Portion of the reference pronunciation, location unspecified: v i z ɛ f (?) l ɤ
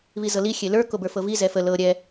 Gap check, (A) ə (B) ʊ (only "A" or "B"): A